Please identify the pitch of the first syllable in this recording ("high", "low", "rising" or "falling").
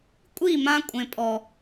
falling